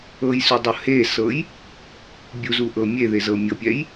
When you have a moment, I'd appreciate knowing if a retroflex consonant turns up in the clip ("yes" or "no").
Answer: no